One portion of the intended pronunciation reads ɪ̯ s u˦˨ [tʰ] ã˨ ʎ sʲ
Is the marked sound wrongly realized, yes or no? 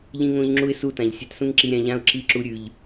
yes